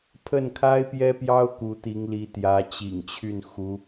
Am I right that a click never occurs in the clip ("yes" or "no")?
yes